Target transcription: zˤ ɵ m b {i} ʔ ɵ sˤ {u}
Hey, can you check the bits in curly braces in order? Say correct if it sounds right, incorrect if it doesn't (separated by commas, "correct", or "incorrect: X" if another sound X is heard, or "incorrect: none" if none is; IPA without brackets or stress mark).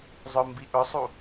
correct, correct